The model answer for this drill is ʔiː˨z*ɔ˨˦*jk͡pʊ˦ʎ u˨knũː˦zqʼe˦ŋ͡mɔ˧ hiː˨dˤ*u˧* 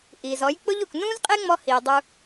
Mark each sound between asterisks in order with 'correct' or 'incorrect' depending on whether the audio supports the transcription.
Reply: correct, correct

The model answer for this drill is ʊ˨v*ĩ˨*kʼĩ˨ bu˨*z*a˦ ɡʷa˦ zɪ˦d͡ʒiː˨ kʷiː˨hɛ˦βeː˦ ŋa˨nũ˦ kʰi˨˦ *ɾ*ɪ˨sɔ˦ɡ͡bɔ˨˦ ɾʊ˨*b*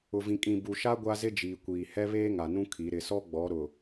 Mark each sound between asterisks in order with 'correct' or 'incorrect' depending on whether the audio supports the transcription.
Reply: correct, incorrect: ʃ, correct, incorrect: none

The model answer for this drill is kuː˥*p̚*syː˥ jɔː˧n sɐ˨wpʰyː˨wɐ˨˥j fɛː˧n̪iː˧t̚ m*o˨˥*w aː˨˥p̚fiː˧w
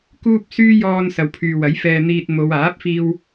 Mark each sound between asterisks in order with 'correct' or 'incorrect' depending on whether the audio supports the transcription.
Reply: correct, incorrect: o˨˧

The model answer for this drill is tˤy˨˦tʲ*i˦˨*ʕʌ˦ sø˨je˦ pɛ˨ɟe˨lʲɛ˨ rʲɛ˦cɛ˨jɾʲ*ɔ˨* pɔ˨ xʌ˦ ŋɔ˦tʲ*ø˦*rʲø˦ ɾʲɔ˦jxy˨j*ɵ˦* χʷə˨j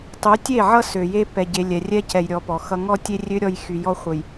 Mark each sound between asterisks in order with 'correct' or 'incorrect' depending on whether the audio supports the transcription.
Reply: incorrect: e˦˨, correct, incorrect: e˦, incorrect: ɔ˦

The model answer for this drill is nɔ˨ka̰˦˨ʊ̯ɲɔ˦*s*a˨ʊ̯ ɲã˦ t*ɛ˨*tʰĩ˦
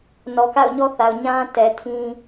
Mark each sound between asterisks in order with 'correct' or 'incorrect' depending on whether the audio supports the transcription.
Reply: incorrect: θ, correct

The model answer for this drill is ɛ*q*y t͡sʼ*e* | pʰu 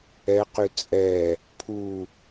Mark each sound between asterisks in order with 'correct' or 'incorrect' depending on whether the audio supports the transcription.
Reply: correct, incorrect: ɛ

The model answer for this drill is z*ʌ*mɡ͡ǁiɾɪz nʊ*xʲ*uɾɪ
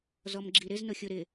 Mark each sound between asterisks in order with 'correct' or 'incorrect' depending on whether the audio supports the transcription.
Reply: incorrect: ɔ, correct

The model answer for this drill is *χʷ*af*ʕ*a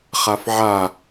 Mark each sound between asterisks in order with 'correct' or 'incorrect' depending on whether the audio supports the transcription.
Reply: incorrect: χ, correct

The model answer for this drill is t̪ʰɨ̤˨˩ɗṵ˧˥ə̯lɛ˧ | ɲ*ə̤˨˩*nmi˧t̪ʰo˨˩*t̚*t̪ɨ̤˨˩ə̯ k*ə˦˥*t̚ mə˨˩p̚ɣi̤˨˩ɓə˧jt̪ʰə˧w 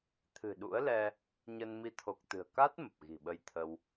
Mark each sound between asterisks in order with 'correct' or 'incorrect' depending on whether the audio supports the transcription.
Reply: incorrect: ə˧, incorrect: k̚, incorrect: a˦˥

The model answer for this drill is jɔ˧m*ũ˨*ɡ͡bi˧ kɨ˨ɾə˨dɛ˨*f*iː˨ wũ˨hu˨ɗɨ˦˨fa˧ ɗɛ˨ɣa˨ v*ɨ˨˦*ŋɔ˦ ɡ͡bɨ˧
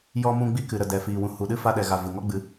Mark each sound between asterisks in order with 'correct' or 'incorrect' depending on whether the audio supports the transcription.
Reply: incorrect: ũ˧, correct, incorrect: ɨ˨

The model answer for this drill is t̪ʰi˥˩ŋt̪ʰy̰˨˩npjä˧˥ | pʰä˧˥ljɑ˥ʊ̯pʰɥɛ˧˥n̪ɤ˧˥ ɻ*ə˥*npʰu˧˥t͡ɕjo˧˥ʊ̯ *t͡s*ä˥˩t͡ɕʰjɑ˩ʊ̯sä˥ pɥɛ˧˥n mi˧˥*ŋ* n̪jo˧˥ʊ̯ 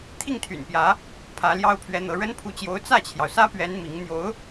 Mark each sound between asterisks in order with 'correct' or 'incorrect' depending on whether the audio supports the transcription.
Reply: correct, correct, correct

